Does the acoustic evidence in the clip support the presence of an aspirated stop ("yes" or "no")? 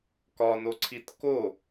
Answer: yes